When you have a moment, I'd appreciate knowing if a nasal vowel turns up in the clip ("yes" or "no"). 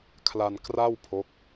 no